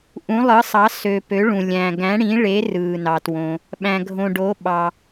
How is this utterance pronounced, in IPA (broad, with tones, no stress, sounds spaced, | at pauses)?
ʔ ũ˨˦ lˠ ɯ˨˦ sˤ ɑ˨˦ s ø˨ p ø˨˦ ɭ ũ˨ lʲ æ̃˨ ɡ æ̃˨˦ ɽ ĩ˨˦ ɭ e˨˦ r ɯː˨ n ɑ˨ t w õ˨ | ɓ æ̃˨ ɡʱ õ˨ ɖ o˨˦ ɓ ɑ˨